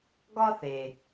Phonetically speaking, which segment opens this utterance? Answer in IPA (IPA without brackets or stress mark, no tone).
ɡ